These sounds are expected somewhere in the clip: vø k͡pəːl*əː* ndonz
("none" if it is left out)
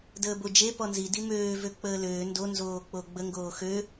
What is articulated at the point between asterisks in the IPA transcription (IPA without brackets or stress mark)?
øː